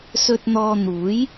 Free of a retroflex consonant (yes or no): yes